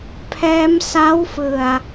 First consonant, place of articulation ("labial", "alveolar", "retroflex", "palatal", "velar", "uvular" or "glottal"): labial